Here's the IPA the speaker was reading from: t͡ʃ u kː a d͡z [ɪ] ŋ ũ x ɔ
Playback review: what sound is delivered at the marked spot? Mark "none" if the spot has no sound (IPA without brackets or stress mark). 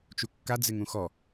ɪ